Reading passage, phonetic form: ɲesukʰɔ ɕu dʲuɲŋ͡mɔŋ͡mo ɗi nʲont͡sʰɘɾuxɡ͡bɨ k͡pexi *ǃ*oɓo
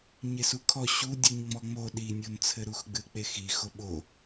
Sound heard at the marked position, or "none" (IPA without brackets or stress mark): x